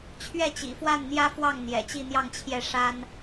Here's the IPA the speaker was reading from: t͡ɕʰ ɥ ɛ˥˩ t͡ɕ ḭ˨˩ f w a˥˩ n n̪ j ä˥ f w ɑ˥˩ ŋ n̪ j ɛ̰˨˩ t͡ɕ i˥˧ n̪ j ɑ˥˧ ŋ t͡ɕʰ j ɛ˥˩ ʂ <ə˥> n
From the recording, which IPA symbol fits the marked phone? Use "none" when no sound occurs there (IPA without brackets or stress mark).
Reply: a˥